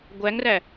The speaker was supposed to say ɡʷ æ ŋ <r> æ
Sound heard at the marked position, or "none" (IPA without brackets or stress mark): r